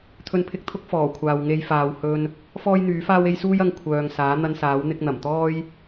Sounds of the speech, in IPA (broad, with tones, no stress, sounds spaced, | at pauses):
t̪ʰ ɵ˧ n pʰ ɪ˧ k̚ t̪ʰ ʊ˥ k̚ f ɔː˨˩ kʷʰ aː˨ w ŋ e˧ j f aː˨ w h ɵ˧ n | f ɔː˥ j n̪ yː˨˥ f aː˥ w e˥ j s uː˥ j ɐ˧ ŋ kʷʰ œː˨ ŋ s aː˨˥ n̪ ɐ˧ n s aː˨˥ w n̪ ɪ˧ k̚ n̪ ɐ˨˩ m t̪ ɔː˥ j